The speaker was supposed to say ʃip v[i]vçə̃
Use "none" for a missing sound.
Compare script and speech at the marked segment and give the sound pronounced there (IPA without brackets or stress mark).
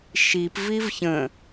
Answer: i